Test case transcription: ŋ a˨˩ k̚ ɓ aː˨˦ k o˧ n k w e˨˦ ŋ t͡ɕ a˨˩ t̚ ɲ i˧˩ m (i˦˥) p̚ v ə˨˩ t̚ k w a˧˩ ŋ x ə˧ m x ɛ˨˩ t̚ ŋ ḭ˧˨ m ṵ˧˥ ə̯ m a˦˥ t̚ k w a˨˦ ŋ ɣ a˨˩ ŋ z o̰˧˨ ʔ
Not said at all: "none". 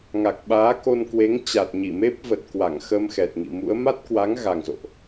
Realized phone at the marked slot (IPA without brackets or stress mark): e˦˥